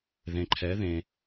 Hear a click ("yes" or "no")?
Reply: yes